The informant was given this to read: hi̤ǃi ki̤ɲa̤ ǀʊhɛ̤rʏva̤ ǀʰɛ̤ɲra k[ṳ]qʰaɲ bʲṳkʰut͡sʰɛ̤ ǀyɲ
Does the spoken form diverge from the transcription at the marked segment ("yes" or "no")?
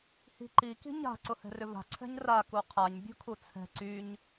yes